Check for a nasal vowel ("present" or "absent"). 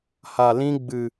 present